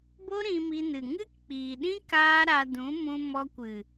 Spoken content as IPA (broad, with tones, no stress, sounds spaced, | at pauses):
b o˦ ɾ ĩ˧ m i˧ n ɨ˨ ŋ ɨ˦ k k͡p iː˨ ɗ ĩ˦ k aː˦ ɾ a˧ d ũ˨˦ m ũ˧ m ɔ˧ kʷ ɨ˨